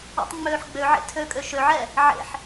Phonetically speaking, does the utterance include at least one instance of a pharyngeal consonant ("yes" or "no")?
yes